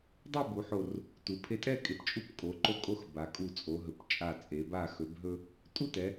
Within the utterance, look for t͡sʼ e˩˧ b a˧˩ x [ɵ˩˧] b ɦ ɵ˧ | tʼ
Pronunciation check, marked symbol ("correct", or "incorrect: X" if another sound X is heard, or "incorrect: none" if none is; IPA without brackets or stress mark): correct